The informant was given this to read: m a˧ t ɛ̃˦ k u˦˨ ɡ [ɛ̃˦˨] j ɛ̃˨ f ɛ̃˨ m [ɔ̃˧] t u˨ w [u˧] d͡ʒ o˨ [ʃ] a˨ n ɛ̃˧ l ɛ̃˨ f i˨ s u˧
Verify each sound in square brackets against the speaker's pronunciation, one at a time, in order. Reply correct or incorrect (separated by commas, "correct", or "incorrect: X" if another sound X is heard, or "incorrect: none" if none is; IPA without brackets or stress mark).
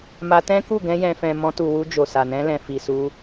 incorrect: ɛ̃˧, correct, correct, incorrect: s